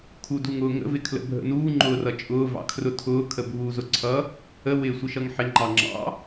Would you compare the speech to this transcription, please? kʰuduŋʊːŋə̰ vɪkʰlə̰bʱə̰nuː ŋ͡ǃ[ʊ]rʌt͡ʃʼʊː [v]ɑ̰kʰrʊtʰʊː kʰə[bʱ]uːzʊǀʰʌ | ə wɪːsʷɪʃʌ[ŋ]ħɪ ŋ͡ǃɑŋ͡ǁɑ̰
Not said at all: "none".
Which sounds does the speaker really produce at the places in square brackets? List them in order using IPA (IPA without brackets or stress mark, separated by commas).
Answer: ʊː, v, bʱ, ŋ